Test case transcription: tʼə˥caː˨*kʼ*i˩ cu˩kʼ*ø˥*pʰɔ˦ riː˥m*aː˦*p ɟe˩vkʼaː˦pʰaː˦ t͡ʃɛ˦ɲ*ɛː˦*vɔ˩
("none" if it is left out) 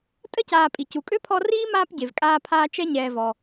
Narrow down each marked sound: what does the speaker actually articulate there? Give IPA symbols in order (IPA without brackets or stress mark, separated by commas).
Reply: pʼ, ø˥, aː˦, ɛː˨